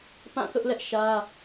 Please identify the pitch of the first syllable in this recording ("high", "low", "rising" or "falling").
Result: falling